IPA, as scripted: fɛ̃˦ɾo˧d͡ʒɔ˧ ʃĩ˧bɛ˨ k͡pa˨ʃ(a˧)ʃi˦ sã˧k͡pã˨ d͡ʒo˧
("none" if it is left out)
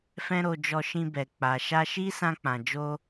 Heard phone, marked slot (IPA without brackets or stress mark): a˧